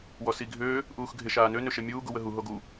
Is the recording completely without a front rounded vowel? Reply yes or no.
no